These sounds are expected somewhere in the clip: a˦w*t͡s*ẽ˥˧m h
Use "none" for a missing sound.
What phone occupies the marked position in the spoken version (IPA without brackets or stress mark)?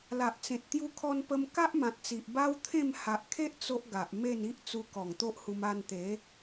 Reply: t̪ʰ